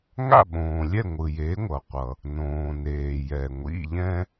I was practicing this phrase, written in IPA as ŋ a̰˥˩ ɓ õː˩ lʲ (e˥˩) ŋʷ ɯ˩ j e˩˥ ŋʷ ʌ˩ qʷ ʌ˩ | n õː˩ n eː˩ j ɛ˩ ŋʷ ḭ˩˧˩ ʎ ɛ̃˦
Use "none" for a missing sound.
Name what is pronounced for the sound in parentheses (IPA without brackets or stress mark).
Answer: ɛ˥˩